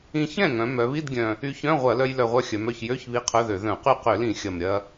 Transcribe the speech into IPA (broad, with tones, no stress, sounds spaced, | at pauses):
ĩ˧ ç ɛ̃˥˩ ŋ œ̃˩˧ m œ˩˧ β i˧˥˧ d ɡʲ œ̃˨˩ | y˧ ç œ̃˧˥˧ ʁʷ ɐ˧˩˧ l œ˧ j l œ˨˩ ʁʷ œ˧ xʲ œ˩˧ m œ˨˩ ç j ø˧˥˧ ç β i˧˥˧ qʰ œ˧˥˧ ð ø˧˩˧ ð œ̃˧˩˧ q y˥˩ q ø˧˩˧ l ĩ˧˩˧ xʲ ɐ˨˩ m ɾʲ ɐ˧